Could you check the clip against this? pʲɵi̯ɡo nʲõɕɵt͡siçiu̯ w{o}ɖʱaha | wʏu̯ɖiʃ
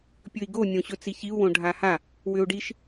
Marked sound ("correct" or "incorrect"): incorrect